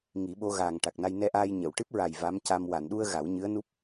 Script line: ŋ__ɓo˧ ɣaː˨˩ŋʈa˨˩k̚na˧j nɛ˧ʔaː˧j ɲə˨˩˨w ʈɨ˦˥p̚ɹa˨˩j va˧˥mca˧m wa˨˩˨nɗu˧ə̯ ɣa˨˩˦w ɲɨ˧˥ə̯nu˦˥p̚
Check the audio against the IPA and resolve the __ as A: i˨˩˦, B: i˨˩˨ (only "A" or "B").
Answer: A